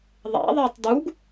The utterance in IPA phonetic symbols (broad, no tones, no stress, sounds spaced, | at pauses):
ðˤ æ̰ ðˤ æ tˤ d u ɡ